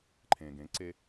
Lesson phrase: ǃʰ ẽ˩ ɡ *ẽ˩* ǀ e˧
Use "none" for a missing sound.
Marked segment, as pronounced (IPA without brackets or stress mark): ẽ˩˥